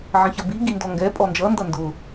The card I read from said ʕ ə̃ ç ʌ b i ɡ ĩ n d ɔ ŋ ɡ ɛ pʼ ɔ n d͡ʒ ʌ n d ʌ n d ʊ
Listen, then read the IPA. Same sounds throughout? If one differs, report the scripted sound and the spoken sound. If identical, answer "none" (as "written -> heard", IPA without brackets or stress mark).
ĩ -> i